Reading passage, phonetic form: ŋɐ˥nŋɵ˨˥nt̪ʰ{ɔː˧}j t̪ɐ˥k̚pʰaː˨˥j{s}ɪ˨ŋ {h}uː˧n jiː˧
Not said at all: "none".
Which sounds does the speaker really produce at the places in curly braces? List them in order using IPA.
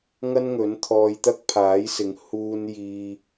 ɔː˧, s, h

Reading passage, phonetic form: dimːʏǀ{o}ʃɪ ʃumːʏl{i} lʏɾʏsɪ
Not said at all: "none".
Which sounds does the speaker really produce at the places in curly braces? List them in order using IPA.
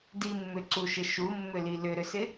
u, i

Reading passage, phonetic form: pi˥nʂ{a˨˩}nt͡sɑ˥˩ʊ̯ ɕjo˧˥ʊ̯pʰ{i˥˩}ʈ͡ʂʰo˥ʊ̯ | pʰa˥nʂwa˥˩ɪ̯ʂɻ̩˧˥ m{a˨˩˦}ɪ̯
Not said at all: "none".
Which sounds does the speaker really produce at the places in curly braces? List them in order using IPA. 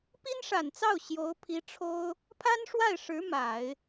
a˨˩, i˧˥, a˨˩˦

